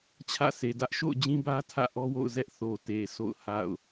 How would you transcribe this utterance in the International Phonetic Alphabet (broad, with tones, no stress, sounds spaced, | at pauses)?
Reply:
t͡ɕʰ ä̰˦˨ sʰ e˨ d ä˦ ʔ ʃ o̰˦˨ ʊ̯ d͡ʑ ĩ˦ b ä˦ tʰ ä̰˦˨ ʔ ɔ˦ w o̰˦˨ ʊ̯ z ɛ˦ ʔ θ o˨ t e˨ s o̰˦˨ ʊ̯ h a̰˦˨ ʊ̯